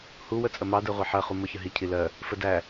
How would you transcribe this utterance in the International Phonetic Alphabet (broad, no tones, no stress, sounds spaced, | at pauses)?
h u w ə t͡sʼ ə m ɑ d ɜ ʁʷ ɜ ħ ɜ χ u m ʊ ç ə ɦ i cʰ i l ɜ | f ə d æ